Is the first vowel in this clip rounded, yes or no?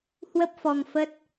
no